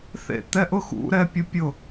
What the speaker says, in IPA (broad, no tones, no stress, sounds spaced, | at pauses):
θ ḛ t̪ ɛ ʔ ʊ x ṵ ɾ ɛ pʲ ʊ pʲ ʊ